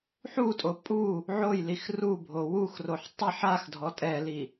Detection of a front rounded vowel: absent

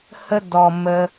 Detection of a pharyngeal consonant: absent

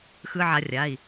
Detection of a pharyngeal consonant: present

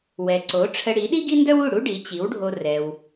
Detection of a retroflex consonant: present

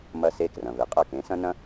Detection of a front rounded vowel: absent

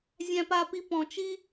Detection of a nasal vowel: present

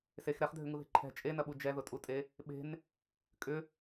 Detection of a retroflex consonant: absent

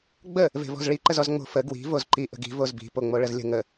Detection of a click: present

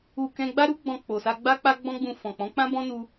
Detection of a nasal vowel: present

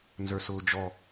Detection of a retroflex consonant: absent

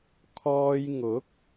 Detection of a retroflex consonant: absent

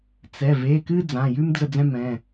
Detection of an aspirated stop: absent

